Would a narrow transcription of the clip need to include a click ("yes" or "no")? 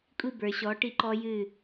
yes